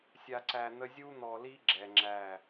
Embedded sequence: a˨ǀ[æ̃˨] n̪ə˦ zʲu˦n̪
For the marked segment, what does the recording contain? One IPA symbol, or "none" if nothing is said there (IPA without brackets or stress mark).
æ˨